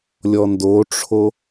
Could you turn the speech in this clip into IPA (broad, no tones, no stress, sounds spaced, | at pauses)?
lʲ ɔ n d o ʈ͡ʂʰ o